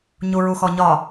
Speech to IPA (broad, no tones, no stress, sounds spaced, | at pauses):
ɲ u ɹ u x ɔ ɲ ɒ